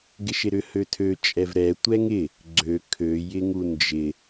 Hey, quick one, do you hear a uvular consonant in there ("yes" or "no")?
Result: no